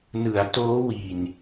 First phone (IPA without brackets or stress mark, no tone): n